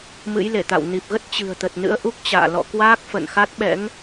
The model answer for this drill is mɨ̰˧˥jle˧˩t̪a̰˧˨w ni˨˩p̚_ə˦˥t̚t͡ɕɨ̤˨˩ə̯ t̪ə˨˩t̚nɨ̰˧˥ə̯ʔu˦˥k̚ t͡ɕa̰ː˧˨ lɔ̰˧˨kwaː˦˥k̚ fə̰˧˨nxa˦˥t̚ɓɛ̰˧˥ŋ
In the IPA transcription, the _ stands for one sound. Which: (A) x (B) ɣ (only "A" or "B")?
B